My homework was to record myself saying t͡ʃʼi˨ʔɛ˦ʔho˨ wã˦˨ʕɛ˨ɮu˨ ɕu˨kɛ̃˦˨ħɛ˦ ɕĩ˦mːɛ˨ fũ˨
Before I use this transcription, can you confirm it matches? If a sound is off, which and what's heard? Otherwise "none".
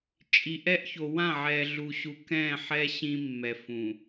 h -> ç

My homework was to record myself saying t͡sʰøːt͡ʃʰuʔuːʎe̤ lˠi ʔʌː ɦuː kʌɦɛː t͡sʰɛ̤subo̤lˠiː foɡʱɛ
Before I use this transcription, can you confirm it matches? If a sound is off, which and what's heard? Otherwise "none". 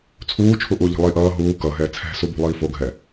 øː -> uː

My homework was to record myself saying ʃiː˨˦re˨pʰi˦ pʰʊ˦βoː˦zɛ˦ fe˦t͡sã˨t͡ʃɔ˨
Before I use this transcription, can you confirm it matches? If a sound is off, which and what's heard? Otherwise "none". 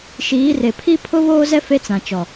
none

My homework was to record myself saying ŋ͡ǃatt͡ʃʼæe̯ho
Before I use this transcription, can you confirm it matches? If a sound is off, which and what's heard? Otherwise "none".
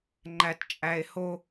a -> æ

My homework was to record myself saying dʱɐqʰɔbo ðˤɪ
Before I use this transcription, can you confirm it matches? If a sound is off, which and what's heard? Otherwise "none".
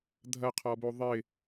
none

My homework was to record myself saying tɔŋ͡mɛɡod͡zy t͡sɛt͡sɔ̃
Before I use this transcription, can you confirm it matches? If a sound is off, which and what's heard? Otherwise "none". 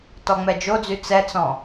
ɡ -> d͡ʒ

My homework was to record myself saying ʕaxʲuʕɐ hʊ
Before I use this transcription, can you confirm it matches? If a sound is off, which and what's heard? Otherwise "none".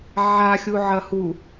ʊ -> u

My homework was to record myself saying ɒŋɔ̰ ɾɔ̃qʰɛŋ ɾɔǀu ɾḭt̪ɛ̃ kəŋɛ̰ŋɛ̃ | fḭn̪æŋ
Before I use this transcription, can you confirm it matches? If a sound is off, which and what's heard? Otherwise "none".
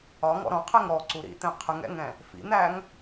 k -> qʰ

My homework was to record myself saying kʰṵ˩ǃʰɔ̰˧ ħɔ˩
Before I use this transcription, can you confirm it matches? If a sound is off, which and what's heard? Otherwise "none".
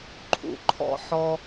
kʰ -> ǃʰ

